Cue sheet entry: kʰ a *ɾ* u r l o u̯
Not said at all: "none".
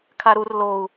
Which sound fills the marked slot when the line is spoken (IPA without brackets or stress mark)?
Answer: ɾ